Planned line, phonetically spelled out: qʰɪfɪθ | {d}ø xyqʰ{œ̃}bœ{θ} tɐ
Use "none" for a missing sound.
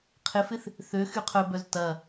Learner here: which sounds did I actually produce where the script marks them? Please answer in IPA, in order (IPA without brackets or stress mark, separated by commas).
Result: θ, œ, z